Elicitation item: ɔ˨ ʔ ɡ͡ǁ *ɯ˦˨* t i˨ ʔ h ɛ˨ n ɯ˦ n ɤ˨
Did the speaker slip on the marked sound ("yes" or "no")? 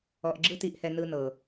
yes